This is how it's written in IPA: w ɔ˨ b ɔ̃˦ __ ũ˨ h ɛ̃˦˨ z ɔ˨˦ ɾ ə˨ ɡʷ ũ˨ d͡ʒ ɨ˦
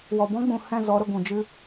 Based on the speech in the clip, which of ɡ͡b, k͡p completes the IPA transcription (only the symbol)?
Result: ɡ͡b